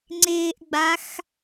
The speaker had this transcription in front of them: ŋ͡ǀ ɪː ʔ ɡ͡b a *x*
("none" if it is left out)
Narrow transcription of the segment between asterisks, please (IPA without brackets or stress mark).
x